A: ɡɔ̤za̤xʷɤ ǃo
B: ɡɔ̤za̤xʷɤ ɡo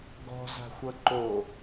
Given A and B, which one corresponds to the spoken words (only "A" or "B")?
A